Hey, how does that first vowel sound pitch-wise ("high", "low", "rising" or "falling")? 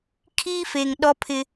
high